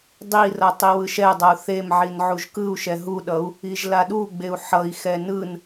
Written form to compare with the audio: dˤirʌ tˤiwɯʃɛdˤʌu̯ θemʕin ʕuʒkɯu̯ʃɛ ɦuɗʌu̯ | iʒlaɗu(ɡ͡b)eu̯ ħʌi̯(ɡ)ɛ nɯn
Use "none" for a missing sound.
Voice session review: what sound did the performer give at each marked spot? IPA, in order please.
ɡ͡b, x

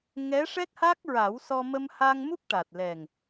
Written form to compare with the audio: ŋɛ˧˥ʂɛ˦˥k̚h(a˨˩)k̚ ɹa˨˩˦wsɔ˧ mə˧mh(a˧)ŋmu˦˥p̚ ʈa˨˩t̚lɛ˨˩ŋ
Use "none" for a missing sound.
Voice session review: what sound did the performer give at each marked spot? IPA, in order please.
a˦˥, a˧

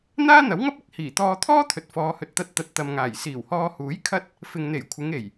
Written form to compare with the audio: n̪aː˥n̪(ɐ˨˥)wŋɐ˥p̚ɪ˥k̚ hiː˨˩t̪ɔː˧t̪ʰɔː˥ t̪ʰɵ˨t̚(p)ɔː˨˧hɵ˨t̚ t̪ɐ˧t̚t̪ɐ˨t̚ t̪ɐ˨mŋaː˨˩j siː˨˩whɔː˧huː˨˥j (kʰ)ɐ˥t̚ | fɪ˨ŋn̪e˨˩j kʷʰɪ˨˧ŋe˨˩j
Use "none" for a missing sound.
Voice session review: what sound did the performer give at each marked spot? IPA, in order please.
ɐ˨˥, f, kʰ

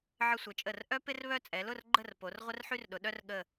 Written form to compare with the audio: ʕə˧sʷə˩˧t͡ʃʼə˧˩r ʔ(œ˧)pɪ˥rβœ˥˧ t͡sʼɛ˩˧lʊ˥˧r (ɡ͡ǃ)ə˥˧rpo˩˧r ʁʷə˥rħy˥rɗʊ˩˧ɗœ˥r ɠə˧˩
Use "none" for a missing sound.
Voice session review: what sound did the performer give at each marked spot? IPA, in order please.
œ˥, ɡ͡ǃ

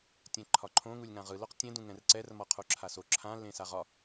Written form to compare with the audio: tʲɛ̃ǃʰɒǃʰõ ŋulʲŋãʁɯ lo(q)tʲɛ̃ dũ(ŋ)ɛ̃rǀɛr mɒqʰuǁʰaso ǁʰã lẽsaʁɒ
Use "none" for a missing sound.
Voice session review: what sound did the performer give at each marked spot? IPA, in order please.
q, ŋ

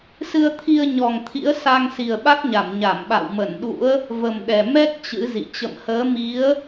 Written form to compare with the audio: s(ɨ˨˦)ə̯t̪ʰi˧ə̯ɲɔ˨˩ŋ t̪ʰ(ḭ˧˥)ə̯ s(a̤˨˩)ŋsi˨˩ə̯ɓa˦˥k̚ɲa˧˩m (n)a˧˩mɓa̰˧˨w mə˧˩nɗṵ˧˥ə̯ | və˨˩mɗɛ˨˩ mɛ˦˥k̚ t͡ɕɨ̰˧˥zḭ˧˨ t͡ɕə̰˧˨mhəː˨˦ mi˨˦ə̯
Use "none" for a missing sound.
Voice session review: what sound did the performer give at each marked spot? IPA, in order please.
ɨ˧, ḭ˧˥, a˧, ɲ

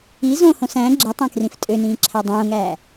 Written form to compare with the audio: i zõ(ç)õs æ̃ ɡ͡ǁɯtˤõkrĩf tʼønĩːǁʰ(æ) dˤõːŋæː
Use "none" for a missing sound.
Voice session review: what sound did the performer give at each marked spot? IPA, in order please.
h, æ

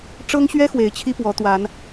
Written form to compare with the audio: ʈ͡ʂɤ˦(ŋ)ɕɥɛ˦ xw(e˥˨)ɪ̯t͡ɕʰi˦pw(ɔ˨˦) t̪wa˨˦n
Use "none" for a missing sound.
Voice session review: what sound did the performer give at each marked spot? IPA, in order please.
ŋ, e˨˦, ɔ˨˦

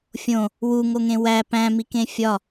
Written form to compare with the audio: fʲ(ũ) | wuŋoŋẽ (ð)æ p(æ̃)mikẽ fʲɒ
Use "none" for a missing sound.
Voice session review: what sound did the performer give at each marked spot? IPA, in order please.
õ, w, æ̃

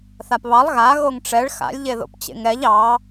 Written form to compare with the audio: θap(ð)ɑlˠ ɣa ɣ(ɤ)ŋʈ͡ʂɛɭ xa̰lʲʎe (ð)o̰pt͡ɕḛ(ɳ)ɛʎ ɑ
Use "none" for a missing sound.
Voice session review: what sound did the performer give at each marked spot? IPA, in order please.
β, o, ð, ŋ

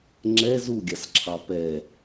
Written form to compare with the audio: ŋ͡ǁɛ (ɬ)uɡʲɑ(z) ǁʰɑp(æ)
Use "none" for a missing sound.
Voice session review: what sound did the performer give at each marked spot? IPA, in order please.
z, s, ɛ

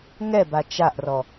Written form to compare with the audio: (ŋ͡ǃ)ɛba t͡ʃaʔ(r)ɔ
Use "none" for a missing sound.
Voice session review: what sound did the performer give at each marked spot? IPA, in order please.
ŋ, r

